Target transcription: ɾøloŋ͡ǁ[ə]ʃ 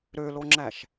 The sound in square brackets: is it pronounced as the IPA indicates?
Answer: no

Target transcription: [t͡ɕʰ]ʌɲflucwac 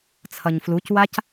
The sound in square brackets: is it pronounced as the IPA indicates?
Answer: no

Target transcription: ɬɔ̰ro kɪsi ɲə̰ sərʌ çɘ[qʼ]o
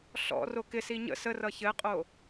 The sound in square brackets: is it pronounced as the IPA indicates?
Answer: yes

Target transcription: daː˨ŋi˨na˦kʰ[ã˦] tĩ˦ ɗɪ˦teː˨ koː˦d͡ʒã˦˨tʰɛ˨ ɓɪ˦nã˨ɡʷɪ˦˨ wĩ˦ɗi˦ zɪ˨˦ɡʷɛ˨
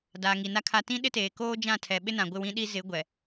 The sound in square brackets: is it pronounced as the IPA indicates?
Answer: no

